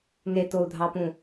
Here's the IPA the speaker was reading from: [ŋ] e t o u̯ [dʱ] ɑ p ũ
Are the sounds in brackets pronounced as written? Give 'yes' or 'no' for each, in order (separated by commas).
yes, yes